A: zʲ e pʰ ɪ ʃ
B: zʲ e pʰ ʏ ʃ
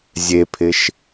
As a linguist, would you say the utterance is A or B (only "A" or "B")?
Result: A